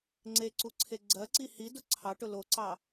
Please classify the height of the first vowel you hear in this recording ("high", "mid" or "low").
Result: mid